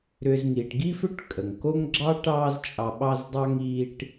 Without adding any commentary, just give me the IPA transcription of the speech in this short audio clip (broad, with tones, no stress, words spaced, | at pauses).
ɾʏ˨zŋiː˩ʈɡi˥fʏ˥ʈ kʼə˩ŋko˥ŋ ɡ͡ǁɑ˥ʈɑː˦z t͡ʃʼɑ˨ɓɑ˦zdˤɑ˦ŋ iː˦ʈ